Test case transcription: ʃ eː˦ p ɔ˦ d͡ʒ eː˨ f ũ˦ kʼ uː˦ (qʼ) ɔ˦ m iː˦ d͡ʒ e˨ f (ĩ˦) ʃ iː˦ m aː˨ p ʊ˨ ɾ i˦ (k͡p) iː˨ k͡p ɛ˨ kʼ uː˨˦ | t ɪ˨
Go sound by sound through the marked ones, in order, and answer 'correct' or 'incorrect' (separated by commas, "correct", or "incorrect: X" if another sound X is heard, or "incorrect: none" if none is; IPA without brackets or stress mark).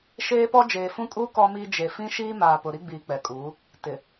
incorrect: k, correct, incorrect: ɡ͡b